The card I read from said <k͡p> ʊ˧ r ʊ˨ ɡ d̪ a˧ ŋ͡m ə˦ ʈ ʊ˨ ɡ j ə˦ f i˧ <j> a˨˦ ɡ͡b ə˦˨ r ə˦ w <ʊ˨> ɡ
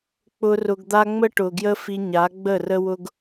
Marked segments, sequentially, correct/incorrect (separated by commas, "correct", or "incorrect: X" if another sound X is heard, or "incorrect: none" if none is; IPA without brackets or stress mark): correct, incorrect: ɲ, incorrect: ʊ˦